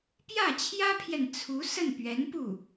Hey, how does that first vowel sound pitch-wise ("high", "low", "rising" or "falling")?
falling